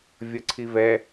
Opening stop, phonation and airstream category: click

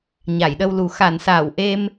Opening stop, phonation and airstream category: implosive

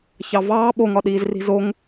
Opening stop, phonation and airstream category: implosive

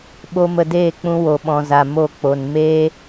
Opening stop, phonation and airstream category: implosive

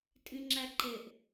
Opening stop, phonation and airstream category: ejective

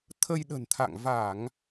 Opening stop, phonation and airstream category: aspirated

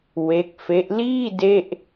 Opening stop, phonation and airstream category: plain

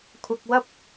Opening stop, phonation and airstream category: aspirated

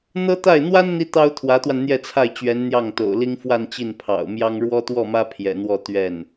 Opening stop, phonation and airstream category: plain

